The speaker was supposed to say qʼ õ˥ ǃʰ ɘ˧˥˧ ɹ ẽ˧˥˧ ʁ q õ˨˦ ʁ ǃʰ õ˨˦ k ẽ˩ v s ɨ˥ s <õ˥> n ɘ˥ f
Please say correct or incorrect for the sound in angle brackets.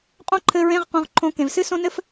correct